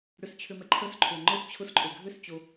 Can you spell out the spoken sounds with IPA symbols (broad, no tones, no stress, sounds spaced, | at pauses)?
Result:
ɽ ʏ s t͡ɕʰ ʏ m ɛ ǃʰ œ s ǃʰ ʏ ɐ̯ ŋ͡ǃ ʊ s t͡ɕʰ ʊ s ǃʼ ø ɡʱ ø s t͡ɕ o